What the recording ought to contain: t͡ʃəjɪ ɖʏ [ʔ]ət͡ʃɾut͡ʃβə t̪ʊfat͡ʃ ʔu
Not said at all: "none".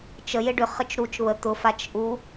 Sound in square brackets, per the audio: χ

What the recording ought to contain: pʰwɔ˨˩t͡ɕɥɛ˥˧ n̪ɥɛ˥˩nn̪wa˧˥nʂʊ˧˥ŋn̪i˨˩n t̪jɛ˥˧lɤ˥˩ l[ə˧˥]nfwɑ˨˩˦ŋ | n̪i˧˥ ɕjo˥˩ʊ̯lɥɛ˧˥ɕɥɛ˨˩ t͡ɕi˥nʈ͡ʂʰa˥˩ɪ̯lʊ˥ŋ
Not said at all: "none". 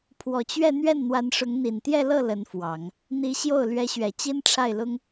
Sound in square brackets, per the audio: ə˧˥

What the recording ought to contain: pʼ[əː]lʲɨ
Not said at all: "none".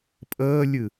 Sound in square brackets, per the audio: əː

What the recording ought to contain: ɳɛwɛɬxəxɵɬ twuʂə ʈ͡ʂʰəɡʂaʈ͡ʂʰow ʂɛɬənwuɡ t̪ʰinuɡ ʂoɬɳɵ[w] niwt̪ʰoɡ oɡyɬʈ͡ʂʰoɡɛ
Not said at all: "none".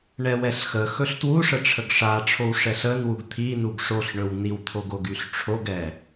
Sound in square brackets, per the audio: w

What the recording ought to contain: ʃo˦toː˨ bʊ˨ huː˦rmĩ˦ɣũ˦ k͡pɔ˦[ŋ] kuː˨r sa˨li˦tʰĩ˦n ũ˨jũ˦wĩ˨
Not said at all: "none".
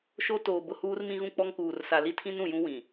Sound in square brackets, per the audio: ŋ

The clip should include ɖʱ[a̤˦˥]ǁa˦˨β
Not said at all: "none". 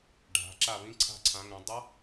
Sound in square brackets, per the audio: a̤˨˦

